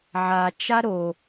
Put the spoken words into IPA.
ʕat͡ʃa ɾo

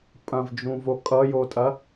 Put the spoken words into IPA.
pʼɐ̃vd͡ʒũvo kʼʌjotʼɐ

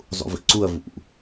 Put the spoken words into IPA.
zˤṵvḭǀuɐ̯ vṵ

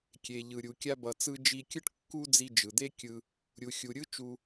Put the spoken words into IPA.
kʲe˩ʎɯ˩ɾʲu˩ kʲa˧bʌ˩ t͡sɯ˧d͡ʒi˧kʲɯ˥ʈ kːu˥d͡zi˧ d͡ʒɯ˩d̪e˥kʲɯ˧ | ɾʲu˩xʲu˩ɾʲɯ˥ t͡ʃu˧

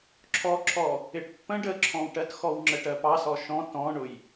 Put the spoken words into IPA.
ǁʰɔǁʰɔ | ɪʈpːə̃ ɖəǁʰɔ̃wʈɜtxɔw ŋ͡ǁəʈɜpɑ sɔʃɔ̃ tɔ̃ɳʊj

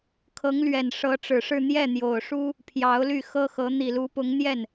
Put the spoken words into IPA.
kʰɤ˧˥ŋlɥɛ˨˩n ʂɤ˧˥ʈ͡ʂɻ̩˨˩ʂɻ̩˥˧ n̪jɛ˥˩n̪jo˨˩ʊ̯ʂu˥ | pʰjɑ˧˥ʊ̯ly˥˩ xɤ˥xɤ˧˥ n̪i˨˩lu˧˥pʊ˧˥ŋ n̪jɛ˥˩n

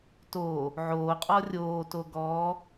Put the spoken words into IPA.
toː | ʕoːqʼɔ rʲoːto ɡɔː

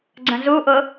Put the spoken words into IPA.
ɡ͡ǀə̃zuʔʊ

